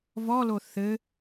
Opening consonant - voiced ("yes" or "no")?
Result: yes